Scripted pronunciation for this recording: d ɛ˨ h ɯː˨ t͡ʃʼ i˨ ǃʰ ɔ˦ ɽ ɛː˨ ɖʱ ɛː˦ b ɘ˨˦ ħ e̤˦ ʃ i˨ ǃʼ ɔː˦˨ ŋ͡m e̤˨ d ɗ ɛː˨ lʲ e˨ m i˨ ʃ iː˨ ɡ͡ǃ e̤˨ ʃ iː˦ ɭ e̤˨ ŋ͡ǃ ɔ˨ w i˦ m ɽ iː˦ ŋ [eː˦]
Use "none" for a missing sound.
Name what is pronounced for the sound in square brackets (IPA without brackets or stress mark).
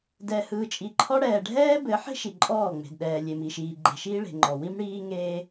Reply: eː˦